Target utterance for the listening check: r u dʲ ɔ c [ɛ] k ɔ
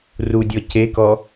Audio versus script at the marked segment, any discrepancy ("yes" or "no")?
yes